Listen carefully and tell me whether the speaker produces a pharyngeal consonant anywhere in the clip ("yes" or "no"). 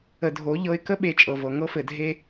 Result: no